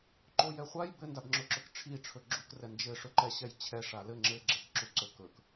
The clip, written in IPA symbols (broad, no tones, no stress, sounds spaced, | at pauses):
ǃ o j ɛ χʷ a j b ɘ n d a b ŋ͡ǁ ɵ ǁ ɵ k ʈ͡ʂʰ i ʈ͡ʂʰ ɵ ɡ͡ǁ u k r ɛ n d͡ʒ ɘ ʂ ɵ ǃ ɛ ɕ ɛ j t͡ɕʰ ɛ ʂ a l ɘ ŋ͡ǁ ɘ ɡ͡ǁ ɛ k ǁ u ǀ ɵ k ɵ k